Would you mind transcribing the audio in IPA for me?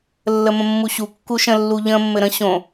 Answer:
lːəmə̃mːuɕu kːuʃə̃ lːuʎə̃ mːɘɾə̃ ɕõ

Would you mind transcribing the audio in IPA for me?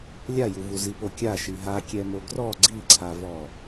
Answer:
lʲajuvu zipokʲa ʃiɦakʲɛmo ɡrɔ ɡ͡ǀiǀʰavɔ

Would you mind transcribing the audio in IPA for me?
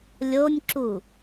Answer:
lʲonʲǁu

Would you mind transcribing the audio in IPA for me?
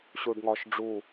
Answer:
ɕuɖŋɒʃ ɖ͡ʐu

